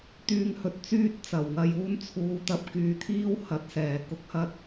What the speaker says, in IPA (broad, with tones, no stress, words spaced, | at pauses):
t̪yː˧ŋhɵ˨t̚t͡syː˥t̚ t͡sɐ˨˩wŋɐ˧juː˥n t͡sʰuː˨˧t̪ɐ˧p̚ kyː˨˧t̪ʰiː˥whɐ˨˥t̚sɛː˨˩ kʊ˥k̚hɐ˥t̚